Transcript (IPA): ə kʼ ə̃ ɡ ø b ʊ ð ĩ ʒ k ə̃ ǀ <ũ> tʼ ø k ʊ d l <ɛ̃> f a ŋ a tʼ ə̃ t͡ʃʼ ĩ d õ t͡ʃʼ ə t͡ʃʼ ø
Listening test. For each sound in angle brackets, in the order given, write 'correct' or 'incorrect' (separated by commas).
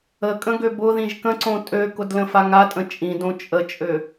incorrect, incorrect